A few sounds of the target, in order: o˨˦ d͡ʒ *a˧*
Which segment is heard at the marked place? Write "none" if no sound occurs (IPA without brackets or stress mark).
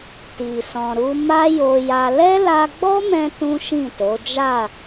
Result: a˦˨